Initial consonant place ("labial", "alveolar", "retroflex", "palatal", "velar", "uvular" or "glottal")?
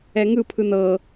velar